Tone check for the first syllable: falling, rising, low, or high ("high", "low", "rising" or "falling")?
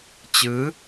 rising